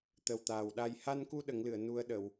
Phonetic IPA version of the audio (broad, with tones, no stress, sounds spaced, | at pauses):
t̪ ə˨˩ w t̪ aː˨˩ w ɗ a˨˩ j h a˧ n k u˧ ɗ ə˨˩˦ ŋ l ɨ˨˩˨ ə̯ n u˧ ə̯ ɗ ə˨˩˨ w